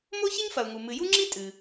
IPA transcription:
m o˥ ç ɨ˥ ɲ f ɐ˩ ʊ̯ ŋ u˩ m ɨ˩ j u˥ ŋ͡ǁ i˥ tʼ ɨ˩

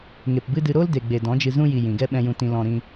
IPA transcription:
ŋ e˨ p b ɨ˦ d ɨ˧ ɾ o˦ l d e˨ ɡ͡b e˨ d ɔ̃˨˦ d͡ʒ ɨ˧ z ũ˧ j i˨ j ĩ˨ ɡ ɛ˦ ɓ ɛ̃˧ j ũ˧ t ĩ˧ l ɔ̃˧ ɾ ĩ˧

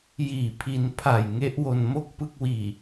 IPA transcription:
j iː˨˩ pʰ i˧ n pʰ a˨˩ j ŋ e˦˥ ʔ w o˧ n m o˥˩ k̚ p ɯ˥˩ k̚ w iː˨˩

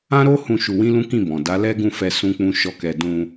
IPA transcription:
ã˦ ɾ o˦ h ũ˧ ʃ u˧ w ĩ˦ l ũ˦ k ĩ˦˨ b ɔ̃˨ d a˨˦ l ɛ˦ ɡ ũ˦˨ f ɛ˧ s ũ˦ k͡p ũ˦ ʃ ɔ˦˨ k ɛ˧ d ũ˧

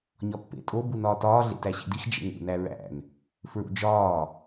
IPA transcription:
ɲ ɒ pː ḛ tʼ o b u n ɒː t ɒː ɮ ḛ t æ ɕ ḭ d i x d͡ʒ ḛ ŋ ṵ n æ ɹ æ̰ n | f ɹ ṵ d͡ʒ ɒː

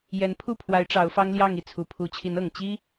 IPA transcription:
j ɛ˧˥ n pʰ u˥˩ pʰ w a˧˥ ɪ̯ ʈ͡ʂ ɑ˧˥ ʊ̯ f ɑ˥ ŋ l j ɑ˥˧ ŋ i˥˩ t͡sʰ u˨˩ pʰ u˧˥ t͡ɕʰ i˧˥ n ɤ˨˩ ŋ t͡ɕ i˥

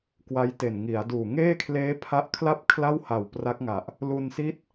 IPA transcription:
k w a˦˥ j t e˨˩ n ŋ i˩˦ a̯ d uː˨˩ ŋ eː˥˩ kʰ l eː˦˥ pʰ a˦˥ ʔ kʰ l a˥˩ p̚ kʰ l a˥˩ w h a˨˩ w p r a˦˥ k̚ ŋ a˨˩ ʔ | l u˧ n s i˥˩ t̚

